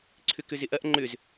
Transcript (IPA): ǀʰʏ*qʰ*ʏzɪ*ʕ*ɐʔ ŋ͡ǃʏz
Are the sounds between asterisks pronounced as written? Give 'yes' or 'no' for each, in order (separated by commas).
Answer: no, no